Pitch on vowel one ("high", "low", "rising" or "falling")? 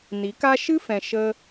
rising